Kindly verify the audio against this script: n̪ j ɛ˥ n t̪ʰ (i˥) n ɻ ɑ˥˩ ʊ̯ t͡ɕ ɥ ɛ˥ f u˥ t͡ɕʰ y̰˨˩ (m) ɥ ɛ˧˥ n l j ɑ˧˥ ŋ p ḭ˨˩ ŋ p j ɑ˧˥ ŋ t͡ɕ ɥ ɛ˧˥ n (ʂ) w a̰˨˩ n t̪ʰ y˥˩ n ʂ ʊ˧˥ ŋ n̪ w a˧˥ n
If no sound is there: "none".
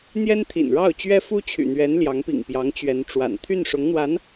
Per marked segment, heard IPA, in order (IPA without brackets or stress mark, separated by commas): ḭ˨˩, n̪, ʈ͡ʂ